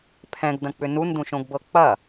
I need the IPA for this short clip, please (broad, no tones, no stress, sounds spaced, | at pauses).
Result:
pʰ ɛ̃ ɡ d ɐ̃ k͡p ʏ n u n d ũ ʃ õ ɡ b ɤ k͡p ɐ